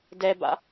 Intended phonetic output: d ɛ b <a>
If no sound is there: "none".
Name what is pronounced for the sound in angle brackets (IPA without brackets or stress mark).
a̰